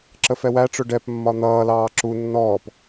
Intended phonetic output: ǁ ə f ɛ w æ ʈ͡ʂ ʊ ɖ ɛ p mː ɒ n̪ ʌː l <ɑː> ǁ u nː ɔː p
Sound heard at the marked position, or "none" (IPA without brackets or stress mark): ɑː